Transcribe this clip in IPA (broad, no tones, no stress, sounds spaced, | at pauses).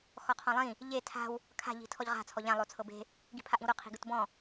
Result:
x ɔ qʰ ɔ̃ lˠ ĩ | ʎ e tʰ a̤ w | kʰ a̤ ʎ i̤ tʰ ɔ ʎ ʁ a̤ t͡sʰ ɔ ʎ ã lˠ o t͡sʰ ɤ b e̤ | ɡ i̤ pʰ a ʔ ĩ w ɾ o qʰ i̤ ɡ ɯ t b ɔ̃